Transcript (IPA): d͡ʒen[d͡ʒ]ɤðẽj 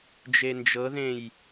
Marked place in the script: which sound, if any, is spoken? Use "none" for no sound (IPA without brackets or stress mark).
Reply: d͡ʒ